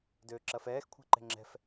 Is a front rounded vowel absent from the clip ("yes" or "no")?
no